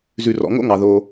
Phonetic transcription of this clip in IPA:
z ʉ˨ r ɔ̰˨ ŋ o̰˦ ŋ ɑ˨ ð o˧

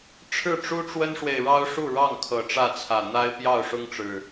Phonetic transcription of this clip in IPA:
ʈ͡ʂʰ ɻ̩˥˨ ʈ͡ʂ u˦ ʈ͡ʂ w ə˦ n ʂ w e˨ ɪ̯ ɻ ɑ˦ ʊ̯ ʂ u˥˨ ɻ ɑ˥˨ ŋ kʰ ɤ˨˩ ʈ͡ʂ ä˥˨ t͡sʰ ä˨˩ n̪ a˦ ɪ̯ p j ɑ˥˨ ʊ̯ ʂ ʊ˦ ŋ ʈ͡ʂ ɻ̩˨˩

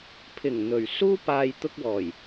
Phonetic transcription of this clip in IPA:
pʰ ɪ˨˩ ŋ n̪ ɵ˨˩ ɥ s uː˥ p aː˧ j t̪ ʊ˧ k̚ w ɔː˨˩ j

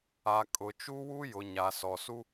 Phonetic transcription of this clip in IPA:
a˨ kʼ ʊ˨ t͡ʃ u˦ w u˦ j ʊ˨ ɲ a˨ s ɔ˨ s u˦

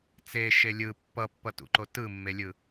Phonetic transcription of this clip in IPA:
t͡s e ʃ e lʲ ɯ pː ʌ pː ʌ t ṵ ǃ o t ɯ mː e lʲ ɯ

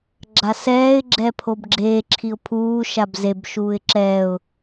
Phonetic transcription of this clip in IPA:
ɡ͡ǁ a s ɛː ɪ̯ ɡ͡ǁ ɛ pʰ o b ɡ͡ǁ eː ǁʰ i ʊ̯ pʰ uː ʃ a b z e b ʃ uː ɪ̯ ǁ ɛː ʊ̯

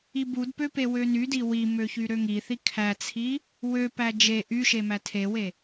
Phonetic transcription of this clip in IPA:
i b u d p ø p e w ø n y d i w i m ø ç y ɾ ø ŋ i θ i kʰ æ t͡sʰ i | w ø p æ d͡ʒ e ʔ y ʃ e m æ tʰ e w e

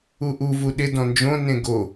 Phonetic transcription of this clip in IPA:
u ʔ u v u ɗ ɪ d ɔ̃ n d͡ʒ õ n ẽ ɡ o

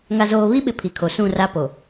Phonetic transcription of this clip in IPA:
ŋ a˨ z oː˨ β i˦ ɓ ɪ˨ pʰ i˨ kʰ o˨ s ũ˦˨ r a˦ p o˨

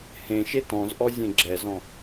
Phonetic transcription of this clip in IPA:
h ẽ ʃ e t ɔ̃ z ʔ ɔ zʲ ẽ ɡ͡ǁ ɛ z ɔ̃

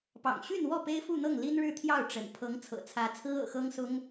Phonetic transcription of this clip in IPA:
p ɑ̰˨˩ ŋ ɕ y˥˧ n w ɔ˥˩ p e˥ ɪ̯ f u˥˧ n̪ ɤ˥˩ ŋ l i˥ n ɻ ɻ̩˥˧ t̪ʰ j ɑ˥˩ ʊ̯ ʈ͡ʂ ə̰˨˩ n pʰ ɤ˧˥ ŋ t͡sʰ ɤ̰˨˩ t͡sʰ ä˧˥ t͡sʰ ɹ̩˥ ɤ̰˨˩ x ɤ˥ ŋ s ʊ˥ ŋ

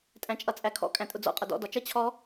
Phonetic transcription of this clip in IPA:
tʼ æ̃ t͡ʃʼ ʌ t͡sʼ æ kʰ ɔ̰ kʼ æ̃ tʼ ʊ d͡z ɔ̰ qʼ ʌ d ɔ̰ d ɒ t͡ʃ ʌ t͡ɕʰ ɔ

